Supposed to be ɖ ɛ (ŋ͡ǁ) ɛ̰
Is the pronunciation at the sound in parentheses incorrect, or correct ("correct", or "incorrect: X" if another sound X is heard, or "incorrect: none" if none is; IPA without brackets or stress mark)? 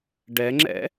correct